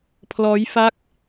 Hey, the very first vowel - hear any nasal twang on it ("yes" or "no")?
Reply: no